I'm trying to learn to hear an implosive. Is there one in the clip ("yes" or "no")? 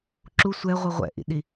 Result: yes